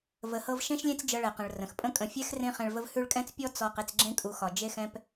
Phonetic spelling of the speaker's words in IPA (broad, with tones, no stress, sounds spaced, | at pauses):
v ə˨ h ɤ˦ v ʃ ẽ˥ ʃ lʲ ẽ˦ t͡s d͡ʒ ɤ˨ ɭ ɛ˩ q ə̃˩ ɭ r ə̃˩ x pʼ ə̃˦ kʼ ə̃˨ fʲ ɛ˥ x r ẽ˥ χ ɛ̃˨ ɭ v ə˦ v h ʉ˦ ɭ kʼ ɛ̃˥ t͡s pʲ ɔ˦ t͡s ɔ˨ q e˨ t͡s ɡ͡ǁ ẽ˦ kʼ u˨ x ɒ˩ d͡ʒ e˦ x ɛ̃˦ p